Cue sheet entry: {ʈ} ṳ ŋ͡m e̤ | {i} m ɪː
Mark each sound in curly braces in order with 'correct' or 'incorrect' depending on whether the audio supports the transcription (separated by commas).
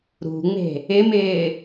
incorrect, incorrect